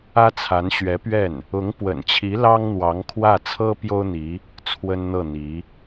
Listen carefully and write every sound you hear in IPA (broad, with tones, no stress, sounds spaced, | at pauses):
ä˥ t͡sʰ a˧˥ n ɕ ɥ ɛ˧˥ p ɥ ɛ˥˩ n | ʊ˧˥ ŋ p w ə̰˨˩ n t͡ɕʰ i˧˥ l ɑ˥ ŋ n̪ w ɑ˧˥ ŋ kʰ w ä˥˩ t͡sʰ ɤ˥ p j o˥ ʊ̯ n̪ i˧˥ | t͡sʰ w ə˥ n n̪ ɤ˥˩ n̪ i˧˥